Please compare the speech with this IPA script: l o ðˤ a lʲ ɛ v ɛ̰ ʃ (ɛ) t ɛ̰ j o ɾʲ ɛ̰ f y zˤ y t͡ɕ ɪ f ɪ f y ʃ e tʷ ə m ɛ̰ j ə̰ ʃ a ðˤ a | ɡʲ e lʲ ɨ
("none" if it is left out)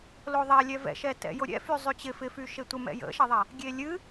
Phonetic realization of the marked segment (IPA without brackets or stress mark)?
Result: ɛ